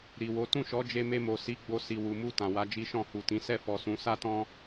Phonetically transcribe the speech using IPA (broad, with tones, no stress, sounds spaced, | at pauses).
ɾ i˨ w o˨˦ t ũ˦˨ ʃ ɔ˨˦ d͡ʒ e˧ m e˧ m o˨ s i˨˦ ɡ͡b o˧ s i˨ w u˨ m u˧ t ã˨ w a˨˦ d͡ʒ i˦ ʃ ɔ̃˦˨ h u˨ t ĩ˨˦ s ɛ˦˨ f ɔ˨ s ũ˨˦ s a˦ t ɔ̃˦